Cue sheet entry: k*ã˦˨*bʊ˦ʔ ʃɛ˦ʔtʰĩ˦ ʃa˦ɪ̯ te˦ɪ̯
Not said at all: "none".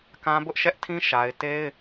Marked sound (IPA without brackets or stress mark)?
ã˦